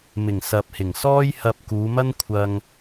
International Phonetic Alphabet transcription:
m ɪ˨˩ ŋ s ɐ˨ p̚ h ɪ˨˩ ŋ s ɔː˥ j h ɐ˧ p̚ k uː˨˧ m ɐ˥ n kʷʰ ɐ˧ ŋ

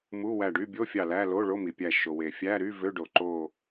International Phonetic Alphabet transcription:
m u˧˥˧ w æ˧˩ ɖ y˧˥˧ bʲ o˧˥˧ fʲ ɑ˧˩ l æ˧˥˧ l o˧˥˧ ɭ o˧˥˧ m i˩ pʲ æ˧˩ ʃ o˩ w e˩ fʲ æ˧˥˧ ɾ y˧˥˧ v ø˧˥˧ ɖ o˩ ǃ o˧˩

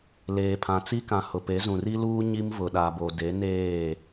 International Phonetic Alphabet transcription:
l eː˨ pʰ ã˨ t͡s i˦ k ã˨ h ʊ˨ p e˨˦ z ũ˨ r i˦ l uː˦ ɲ i˦ m v ʊ˨ ɗ a˨ b o˨ d e˨˦ n eː˦˨

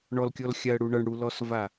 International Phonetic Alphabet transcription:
ɳ ɔ l kʲ ɔ l xʲ a ə̯ ɽ u ɳ ʌ ɳ ɽ u l ɔ s v a

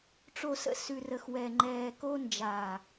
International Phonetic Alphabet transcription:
ʈ͡ʂ o˨ s ə̰˨ s ʉ˨ r ə˨ x w ɛ˨ ŋ͡ǃ ɛː˨ k o˧ n d͡ʒ a˨

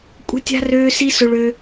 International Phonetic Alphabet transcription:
kʷʼ ə̤˥ tʲ a̤˥ r øː˥ s i˥ s ʊ˥ ɭ ø˥

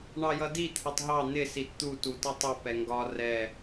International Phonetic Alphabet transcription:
ɳ ɑ j ʌ d i t̪ʰ ʌ tˤ ɦ ɑ n̪ ɪ s i t t̪ u t u t ʌ tˤ ɪ p ɛ ŋ ɡ ɒ r ɛ

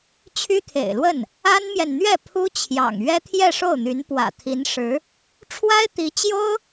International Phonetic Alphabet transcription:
t͡ɕʰ y˥ t̪ʰ ḛ˨˩ ɪ̯ l w ə˥˩ n | a˥ n m j ɛ˨ n n̪ ɥ ɛ˥˩ pʰ u˥ t͡ɕʰ j ɑ̰˨˩ ŋ ɥ ɛ˥ t̪ʰ j ɛ˥˧ ʂ o˥˩ ʊ̯ n̪ y˧˥ n p w ä̰˨˩ t̪ʰ i˧˥ n ʂ ɻ̩˧˥ | ʈ͡ʂʰ w a˥ ɪ̯ t̪ i˧˥ t͡ɕ j o˥ ʊ̯

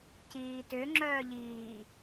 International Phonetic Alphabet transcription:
c iː t ʏ ŋ͡ǁ œː ʎ iː

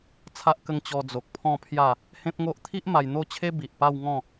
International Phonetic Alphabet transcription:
t͡sʰ a˦ ʔ k ə˥˧ ŋ t͡ɕ ɔ˧ d͡z o˨ k̚ pʰ ɔ̃˥˧ pʰ j a˥˧ | h ẽ˦ p̚ ŋ o˦ ʔ t̪ʰ i˦ ʔ m a˧ j n̪ o˥˧ t͡ɕʰ e˦ b i˨ ʔ p a˥˧ w ŋ ɔ̃˥˧

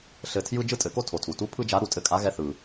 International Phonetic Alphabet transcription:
ɬ ɘ˧˩ tʰ j ɯ˥ d͡ʒ ɯ˥ tʼ ɘ˨˩˦ k o˥ tʰ o˩ tʰ u˩ t u˧˥ pʰ ɯ˥ d͡ʒ a˧˥ ɾ u˧˩ tʼ ɘ˥˩ kʼ a˧˥ ɣ ɛ˧˥ θ ɯ˩

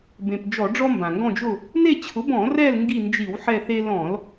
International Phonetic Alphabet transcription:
b ẽ˩ p d͡ʒ ɔ˧˩˧ ɖ͡ʐ ɔ˦ m b ã˩ ŋ ɡ ɔ̃˦˨ d͡ʒ ʊ˦˨ | n e˦˨ t͡ɕʰ ʊ˩˥ b ɔ̃˧˩˧ r ɛ˦˨ l ŋ ɡ i˦˨ n d͡ʒ i˧˩˧ w ħ ɛ˦˨ θ e˦ l ɔ̃˧˩˧ l

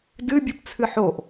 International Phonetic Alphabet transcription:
d ɨ bʲ ɨ p t͡sʰ ɨ ħ o ʔ

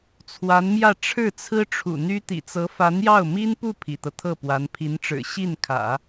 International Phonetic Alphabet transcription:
t͡sʰ w a˧˥ n m j ä˥˧ ʈ͡ʂʰ ɻ̩˥˩ t͡sʰ ɹ̩˥ ʈ͡ʂʰ ṵ˨˩ n̪ y˥ t̪ ḭ˨˩ t͡s ɤ˧˥ f a˧˥ n j ɑ˥˩ ʊ̯ m i˥ n p u˥˩ pʰ ḭ˨˩ t̪ ɤ˦ t̪ʰ ɤ˥˩ p w a˧˥ n pʰ i˧˥ n ʈ͡ʂ ɻ̩˨˩ ɕ i˥˩ n kʰ ä̰˨˩˦

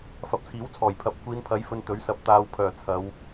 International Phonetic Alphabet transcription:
f ɐ˨ p̚ t͡sʰ iː˨˥ w t͡sʰ ɔː˨˩ j pʰ ɐ˨ p̚ kʷ iː˨˧ n pʰ ɐ˨˥ j f ɵ˨ n t̪ ɵ˨˥ ɥ s ɐ˨˥ p̚ t̪ aː˨ w pʰ œː˨˩ t͡sʰ ɐ˨˧ w

